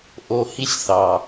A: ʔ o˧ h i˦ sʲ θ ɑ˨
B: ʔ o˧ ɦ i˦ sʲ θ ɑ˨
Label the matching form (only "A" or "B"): A